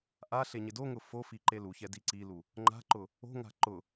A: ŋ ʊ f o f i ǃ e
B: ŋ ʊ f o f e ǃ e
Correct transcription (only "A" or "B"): A